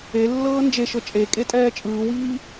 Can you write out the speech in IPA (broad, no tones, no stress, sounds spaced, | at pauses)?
e lː ɤː n d͡ʒ e ʃ ɤ t͡ʃʼ e kʼ e tʼ ɛː t͡ʃʼ ɯː w iː